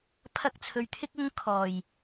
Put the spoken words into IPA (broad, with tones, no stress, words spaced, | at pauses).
pʰɐ˧k̚t͡sʰɵ˨ɥt̪ʰɪ˥k̚ ʊ˥ŋ kʰɔː˨˩j